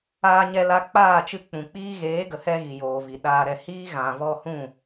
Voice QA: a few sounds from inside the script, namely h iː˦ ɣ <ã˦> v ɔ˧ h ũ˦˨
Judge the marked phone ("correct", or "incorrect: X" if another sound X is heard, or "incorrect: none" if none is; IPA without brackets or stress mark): incorrect: ã˨